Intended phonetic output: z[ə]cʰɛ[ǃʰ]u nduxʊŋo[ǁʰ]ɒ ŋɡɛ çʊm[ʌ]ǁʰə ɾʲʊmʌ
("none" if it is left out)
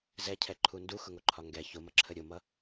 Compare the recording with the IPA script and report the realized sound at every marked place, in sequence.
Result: ɛ, ǃʰ, ǃʰ, ʌ

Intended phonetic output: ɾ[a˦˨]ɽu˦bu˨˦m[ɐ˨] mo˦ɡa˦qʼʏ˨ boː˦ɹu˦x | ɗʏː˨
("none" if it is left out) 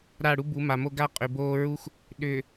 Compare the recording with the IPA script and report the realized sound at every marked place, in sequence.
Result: a˦˨, a˨

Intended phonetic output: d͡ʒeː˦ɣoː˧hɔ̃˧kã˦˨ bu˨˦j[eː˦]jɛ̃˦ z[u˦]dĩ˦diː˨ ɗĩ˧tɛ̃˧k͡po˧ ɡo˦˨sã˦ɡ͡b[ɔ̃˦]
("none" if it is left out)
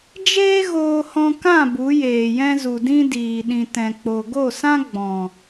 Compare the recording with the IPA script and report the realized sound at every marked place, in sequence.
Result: eː˨, u˨, ɔ̃˨

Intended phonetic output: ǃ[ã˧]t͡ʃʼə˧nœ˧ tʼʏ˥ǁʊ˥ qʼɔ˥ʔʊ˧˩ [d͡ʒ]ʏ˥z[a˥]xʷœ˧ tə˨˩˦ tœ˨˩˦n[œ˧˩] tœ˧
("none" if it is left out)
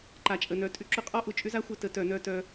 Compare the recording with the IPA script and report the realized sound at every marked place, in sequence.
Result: a˧, t͡ʃʼ, a˥, œ˧

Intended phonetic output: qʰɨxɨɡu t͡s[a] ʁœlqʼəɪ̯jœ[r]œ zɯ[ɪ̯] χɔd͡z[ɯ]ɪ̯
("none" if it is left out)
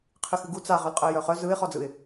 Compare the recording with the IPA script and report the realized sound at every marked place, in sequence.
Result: a, χ, ɪ̯, ɯ

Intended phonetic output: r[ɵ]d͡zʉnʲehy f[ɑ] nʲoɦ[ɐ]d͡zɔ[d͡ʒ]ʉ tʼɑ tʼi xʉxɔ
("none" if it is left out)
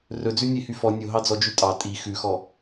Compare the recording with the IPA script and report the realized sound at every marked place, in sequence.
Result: ɵ, ɔ, ɑ, d͡ʒ

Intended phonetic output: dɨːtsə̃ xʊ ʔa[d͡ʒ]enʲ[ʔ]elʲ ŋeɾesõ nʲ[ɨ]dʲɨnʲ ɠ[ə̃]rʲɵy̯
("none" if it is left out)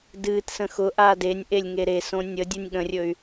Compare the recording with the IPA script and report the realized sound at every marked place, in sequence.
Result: d, ʔ, ə, ə̃

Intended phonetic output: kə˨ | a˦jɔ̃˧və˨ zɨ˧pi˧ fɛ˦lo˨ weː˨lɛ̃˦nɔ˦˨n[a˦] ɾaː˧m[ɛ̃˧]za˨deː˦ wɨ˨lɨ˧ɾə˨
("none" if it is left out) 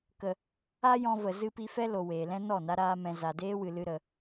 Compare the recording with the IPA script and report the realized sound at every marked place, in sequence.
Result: a˦, ɛ̃˨

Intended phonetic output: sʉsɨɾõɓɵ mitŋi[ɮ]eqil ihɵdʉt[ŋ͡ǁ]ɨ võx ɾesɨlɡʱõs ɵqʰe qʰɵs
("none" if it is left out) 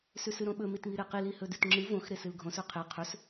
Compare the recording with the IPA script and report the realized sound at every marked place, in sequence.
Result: ɾ, ŋ͡ǁ

